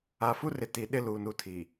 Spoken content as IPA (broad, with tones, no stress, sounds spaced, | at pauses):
a˨ f u˦ r ɪ˨ t i˨ ɗ ɪ˦ l uː˨ n u˨ tʰ iː˨